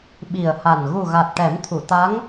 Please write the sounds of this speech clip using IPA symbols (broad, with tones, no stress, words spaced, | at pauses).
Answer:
ɓi˨˩ə̯ha˨˩n ɣu˨˩ɣa˨˩t̚ ʈɛ˨˩˦mt̪ʰu˨˩˨ t̪a˧˥ŋ